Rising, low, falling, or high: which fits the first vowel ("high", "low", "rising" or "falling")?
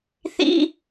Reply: high